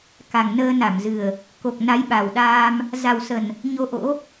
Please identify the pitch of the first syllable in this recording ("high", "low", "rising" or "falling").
low